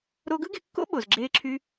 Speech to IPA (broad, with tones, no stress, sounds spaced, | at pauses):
ɾ o˧ ɡ ɯ˥ ɡ e˧ kː o̰˥ ɓ o˩ z ɡ͡ǁ eː˧ ǁʰ y˧